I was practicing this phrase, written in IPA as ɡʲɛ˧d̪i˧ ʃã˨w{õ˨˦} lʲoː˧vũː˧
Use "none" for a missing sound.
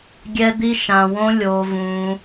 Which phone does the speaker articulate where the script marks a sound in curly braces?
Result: õ˧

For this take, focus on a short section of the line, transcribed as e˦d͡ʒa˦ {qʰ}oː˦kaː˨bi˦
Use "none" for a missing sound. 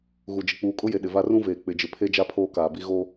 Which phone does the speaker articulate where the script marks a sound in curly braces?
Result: pʰ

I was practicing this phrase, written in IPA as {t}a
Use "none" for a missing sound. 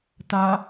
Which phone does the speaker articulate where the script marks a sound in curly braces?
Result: t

